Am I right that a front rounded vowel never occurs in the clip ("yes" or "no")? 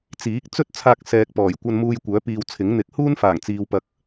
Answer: no